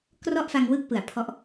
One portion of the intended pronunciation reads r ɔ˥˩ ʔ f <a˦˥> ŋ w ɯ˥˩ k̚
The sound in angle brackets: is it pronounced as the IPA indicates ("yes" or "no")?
no